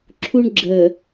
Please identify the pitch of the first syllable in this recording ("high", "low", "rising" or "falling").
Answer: high